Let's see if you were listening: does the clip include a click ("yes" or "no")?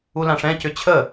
no